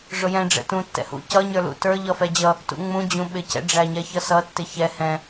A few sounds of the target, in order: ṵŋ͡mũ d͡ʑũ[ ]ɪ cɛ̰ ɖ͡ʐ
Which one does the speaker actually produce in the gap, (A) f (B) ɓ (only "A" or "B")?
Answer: B